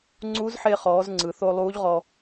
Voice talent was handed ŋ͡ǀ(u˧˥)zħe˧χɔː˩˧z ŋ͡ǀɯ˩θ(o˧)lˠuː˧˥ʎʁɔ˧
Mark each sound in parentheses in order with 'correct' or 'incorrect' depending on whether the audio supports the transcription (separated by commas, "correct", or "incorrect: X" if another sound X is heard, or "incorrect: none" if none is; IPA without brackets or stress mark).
correct, correct